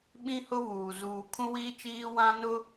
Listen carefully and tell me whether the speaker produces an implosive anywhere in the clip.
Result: yes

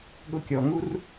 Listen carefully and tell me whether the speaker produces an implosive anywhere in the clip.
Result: yes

